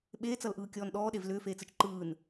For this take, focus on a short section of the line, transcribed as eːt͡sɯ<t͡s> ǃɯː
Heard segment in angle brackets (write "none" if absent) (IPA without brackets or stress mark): t͡ʃ